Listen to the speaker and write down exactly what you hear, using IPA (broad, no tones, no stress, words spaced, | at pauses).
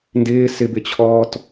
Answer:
ndɪː sɪbɪt͡ɕʰɔːt